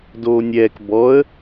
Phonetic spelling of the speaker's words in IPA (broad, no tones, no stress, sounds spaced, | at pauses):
d oː nʲ ɛː k b ɔ ə̯